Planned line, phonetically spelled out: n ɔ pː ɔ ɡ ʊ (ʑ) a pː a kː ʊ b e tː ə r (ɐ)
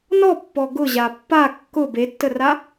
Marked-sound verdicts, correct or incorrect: correct, incorrect: a

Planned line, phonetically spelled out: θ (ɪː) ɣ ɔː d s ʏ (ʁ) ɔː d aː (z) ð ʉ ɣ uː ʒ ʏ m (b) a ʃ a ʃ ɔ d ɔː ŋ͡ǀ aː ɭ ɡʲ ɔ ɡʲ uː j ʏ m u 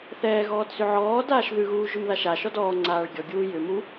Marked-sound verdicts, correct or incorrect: incorrect: ɛː, incorrect: ʕ, incorrect: ʃ, incorrect: ð

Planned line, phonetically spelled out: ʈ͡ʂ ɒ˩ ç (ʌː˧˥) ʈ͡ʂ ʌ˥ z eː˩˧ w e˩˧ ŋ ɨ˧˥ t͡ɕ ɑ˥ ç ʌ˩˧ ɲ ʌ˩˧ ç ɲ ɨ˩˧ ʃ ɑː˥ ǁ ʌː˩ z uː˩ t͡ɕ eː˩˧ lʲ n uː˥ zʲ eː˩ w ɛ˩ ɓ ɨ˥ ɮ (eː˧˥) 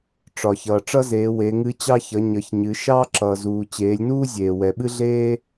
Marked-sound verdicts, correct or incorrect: incorrect: ʌː˩, incorrect: eː˥

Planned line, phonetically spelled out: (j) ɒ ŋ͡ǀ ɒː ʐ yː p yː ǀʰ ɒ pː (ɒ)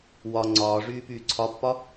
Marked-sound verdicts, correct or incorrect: incorrect: w, correct

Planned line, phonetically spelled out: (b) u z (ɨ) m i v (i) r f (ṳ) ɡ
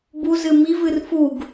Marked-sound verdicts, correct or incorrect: correct, correct, incorrect: ɨ, incorrect: u

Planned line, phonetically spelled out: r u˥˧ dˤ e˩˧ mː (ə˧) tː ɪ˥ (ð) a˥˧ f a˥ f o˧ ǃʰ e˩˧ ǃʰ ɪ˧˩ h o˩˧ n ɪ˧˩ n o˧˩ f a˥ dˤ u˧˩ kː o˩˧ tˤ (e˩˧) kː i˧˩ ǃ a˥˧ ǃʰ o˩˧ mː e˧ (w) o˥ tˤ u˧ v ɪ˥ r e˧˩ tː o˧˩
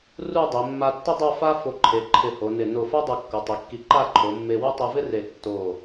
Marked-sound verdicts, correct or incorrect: incorrect: a˧, incorrect: dˤ, correct, correct

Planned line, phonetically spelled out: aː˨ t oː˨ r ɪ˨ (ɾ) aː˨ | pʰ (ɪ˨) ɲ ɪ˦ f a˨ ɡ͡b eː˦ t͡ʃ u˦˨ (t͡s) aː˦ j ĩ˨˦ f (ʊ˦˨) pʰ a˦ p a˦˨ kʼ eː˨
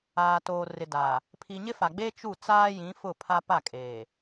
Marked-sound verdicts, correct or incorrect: incorrect: d, incorrect: i˨, correct, correct

